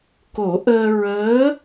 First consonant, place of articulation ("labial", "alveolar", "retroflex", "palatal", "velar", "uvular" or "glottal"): velar